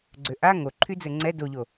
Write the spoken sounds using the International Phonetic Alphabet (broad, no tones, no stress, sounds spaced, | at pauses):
ɡ͡ǀ ø ʔ a ŋ o ǃʰ y d͡z ɘ ŋ͡ǀ ɛ d o ʎ o